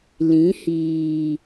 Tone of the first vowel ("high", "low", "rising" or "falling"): rising